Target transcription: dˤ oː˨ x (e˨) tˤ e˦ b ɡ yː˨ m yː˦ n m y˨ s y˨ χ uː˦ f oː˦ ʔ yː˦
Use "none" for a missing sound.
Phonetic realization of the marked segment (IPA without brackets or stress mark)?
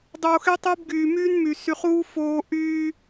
e˦